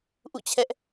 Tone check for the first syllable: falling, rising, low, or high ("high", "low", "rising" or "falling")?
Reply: falling